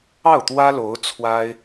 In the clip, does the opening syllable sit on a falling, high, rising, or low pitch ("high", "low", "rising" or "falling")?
falling